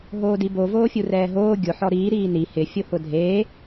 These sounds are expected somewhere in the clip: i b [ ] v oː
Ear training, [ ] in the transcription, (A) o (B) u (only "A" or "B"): A